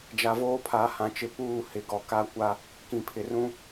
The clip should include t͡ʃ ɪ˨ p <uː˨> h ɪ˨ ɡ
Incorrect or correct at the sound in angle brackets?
incorrect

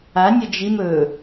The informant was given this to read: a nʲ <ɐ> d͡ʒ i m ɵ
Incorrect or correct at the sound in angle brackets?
correct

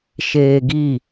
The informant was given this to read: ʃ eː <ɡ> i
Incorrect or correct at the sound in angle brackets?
correct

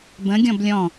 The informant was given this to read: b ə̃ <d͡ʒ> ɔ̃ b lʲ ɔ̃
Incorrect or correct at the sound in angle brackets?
incorrect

